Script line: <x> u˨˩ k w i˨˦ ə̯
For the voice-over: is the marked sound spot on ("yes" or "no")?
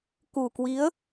no